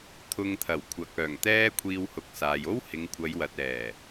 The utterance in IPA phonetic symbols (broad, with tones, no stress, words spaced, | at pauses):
t̪ʰʊ˨ŋ t̪ʰɐ˨˩wkʷʰɐ˨k̚œː˨˩ŋ t̪ɛː˥kʷʰiː˧whʊ˨˥k̚saː˨j o˥w hɪ˨˧ŋkʷʰɐ˨˧jwɐ˨t̚ɛː˨˩